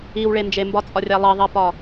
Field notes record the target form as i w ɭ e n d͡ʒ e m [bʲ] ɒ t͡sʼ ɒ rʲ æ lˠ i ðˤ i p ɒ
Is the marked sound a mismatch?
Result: yes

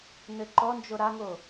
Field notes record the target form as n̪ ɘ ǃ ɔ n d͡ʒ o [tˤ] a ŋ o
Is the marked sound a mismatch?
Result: yes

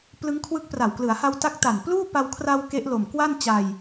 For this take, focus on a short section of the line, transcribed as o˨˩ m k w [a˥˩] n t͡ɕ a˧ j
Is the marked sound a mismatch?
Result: no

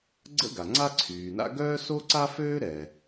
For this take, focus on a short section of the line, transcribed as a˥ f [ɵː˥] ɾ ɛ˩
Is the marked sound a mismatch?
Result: yes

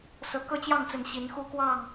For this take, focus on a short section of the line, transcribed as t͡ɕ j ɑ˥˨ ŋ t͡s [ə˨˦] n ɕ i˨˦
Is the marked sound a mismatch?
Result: no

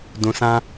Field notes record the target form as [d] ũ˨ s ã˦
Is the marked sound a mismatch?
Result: no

